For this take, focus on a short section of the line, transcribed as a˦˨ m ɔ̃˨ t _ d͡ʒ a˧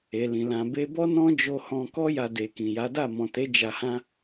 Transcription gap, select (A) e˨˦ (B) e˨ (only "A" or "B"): A